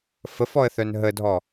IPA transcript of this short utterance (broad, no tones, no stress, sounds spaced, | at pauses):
f ə f ɔ ə̯ θ œ n ɦ ə dʱ ɔ